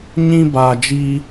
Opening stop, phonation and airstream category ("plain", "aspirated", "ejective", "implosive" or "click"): plain